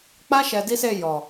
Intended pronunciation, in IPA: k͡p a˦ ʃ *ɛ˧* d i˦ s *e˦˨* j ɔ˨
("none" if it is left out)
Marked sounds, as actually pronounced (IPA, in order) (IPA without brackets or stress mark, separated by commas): ɛ˧, e˦˨